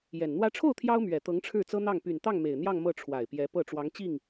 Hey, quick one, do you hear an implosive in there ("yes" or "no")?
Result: no